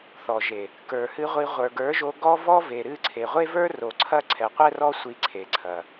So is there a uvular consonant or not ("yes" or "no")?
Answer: yes